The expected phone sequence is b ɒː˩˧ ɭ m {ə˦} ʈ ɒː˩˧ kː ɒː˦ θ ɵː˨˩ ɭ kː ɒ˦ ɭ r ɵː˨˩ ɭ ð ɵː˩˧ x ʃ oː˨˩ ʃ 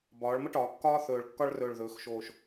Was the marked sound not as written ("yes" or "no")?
no